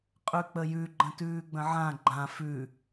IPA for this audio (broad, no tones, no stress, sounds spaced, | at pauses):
qʼ ʉ k͡p ə j ʉ ɡ͡ǃ ə̃ t ʉː ɡ͡b ə̃ ʕ ã ɡ͡ǃ ã f ʉ